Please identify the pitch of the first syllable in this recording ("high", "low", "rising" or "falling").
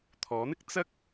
rising